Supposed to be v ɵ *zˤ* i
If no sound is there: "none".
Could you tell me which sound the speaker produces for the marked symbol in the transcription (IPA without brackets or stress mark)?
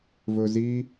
z